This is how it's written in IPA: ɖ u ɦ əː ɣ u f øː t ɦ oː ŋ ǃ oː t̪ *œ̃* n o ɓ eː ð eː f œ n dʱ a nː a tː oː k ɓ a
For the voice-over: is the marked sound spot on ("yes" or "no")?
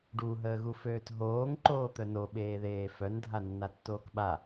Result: no